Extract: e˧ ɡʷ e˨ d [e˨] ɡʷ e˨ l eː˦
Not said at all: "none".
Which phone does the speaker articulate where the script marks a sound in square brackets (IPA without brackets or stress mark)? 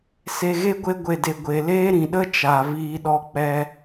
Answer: e˨